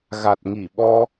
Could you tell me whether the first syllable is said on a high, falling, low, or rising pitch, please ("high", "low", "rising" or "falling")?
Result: low